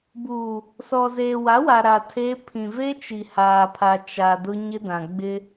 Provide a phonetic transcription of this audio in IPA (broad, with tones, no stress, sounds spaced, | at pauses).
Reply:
b uː˨ | s ɔ˨ z eː˨ w a˨˦ w a˨ ɾ a˨ tʰ e˦ pʰ ĩ˨ v e˦ t͡ʃ i˨ h aː˨ pʰ a˨ t͡ʃ a˨ d ʊ˦ ɲ ɪ˦ d ã˨ ɡ͡b ɪ˦